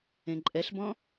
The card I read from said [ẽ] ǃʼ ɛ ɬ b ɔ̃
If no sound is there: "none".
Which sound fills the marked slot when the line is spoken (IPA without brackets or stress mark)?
ẽ